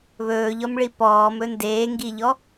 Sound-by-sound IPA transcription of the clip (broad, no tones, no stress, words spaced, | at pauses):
βɵːʎɔmɭi pɔːmɵ ndeːŋɡiʎɔ